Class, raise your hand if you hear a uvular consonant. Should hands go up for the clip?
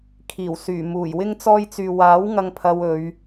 no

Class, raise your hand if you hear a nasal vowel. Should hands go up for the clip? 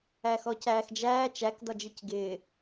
no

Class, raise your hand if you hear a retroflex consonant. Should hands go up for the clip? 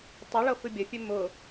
yes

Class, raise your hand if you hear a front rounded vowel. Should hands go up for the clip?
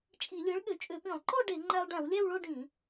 yes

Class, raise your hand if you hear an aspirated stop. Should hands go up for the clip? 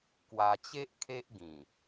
yes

